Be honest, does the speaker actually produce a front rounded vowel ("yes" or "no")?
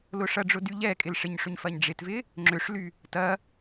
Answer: yes